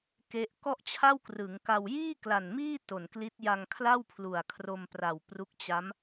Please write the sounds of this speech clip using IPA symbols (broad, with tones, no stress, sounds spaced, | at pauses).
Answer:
k e˦˥ ʔ k ɔ˥˩ ʔ t͡ɕʰ a˥˩ w k r ɯ˩˦ ŋ k a˧ w j iː˥˩ k l a˨˩ n m iː˥˩ t o˨˩ n k l i˦˥ t̚ j a˧ ŋ kʰ l a˥˩ w pʰ l u˨˩ a̯ kʰ r o˧ m p r a˨˩ w p r u˦˥ k̚ t͡ɕ a˦˥ m